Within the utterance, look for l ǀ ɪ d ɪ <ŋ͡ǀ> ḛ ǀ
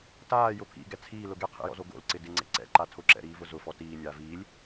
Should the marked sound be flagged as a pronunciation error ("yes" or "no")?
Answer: no